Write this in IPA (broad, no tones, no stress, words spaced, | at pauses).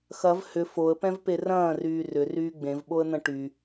xɐv hʏ foə̯pɛ̃vpe rɐ̃ːryː rʏryː ɡ͡bẽvɓoə̯n̪ɐ̃ ʈy